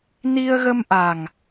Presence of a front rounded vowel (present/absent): absent